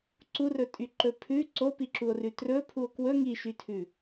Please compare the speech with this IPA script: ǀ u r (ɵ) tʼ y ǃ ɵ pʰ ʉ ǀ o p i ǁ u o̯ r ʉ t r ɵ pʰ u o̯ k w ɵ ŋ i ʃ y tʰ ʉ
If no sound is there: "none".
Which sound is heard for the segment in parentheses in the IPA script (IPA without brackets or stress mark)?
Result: ɵ